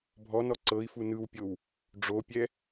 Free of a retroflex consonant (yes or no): no